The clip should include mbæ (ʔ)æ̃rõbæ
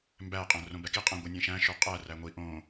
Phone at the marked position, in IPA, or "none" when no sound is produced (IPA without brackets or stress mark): qʼ